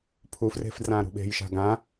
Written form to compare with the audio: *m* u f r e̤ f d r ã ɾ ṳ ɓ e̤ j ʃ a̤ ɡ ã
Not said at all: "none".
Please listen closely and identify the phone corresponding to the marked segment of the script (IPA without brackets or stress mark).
pʰ